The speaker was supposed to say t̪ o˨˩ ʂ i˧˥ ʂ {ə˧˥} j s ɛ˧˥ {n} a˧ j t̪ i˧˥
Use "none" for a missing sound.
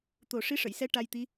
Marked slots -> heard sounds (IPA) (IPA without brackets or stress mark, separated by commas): ə˨˩˨, ʈ